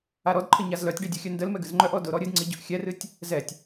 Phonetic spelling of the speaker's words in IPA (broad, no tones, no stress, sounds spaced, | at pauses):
a ɾ ɔ d ǃʰ ə ɲ a z l œ tʲ ɖ i dʲ ɨ xʲ œ n d ə l m ɛ ɡ ɨ z ŋ͡ǃ œ ʔ ɔ d ʊ ɾ ɔ ɾʲ ɨ d ŋ͡ǀ i ɟ ʊ ʔ xʲ ɛ r ɨ tʲ | z ɛ tʲ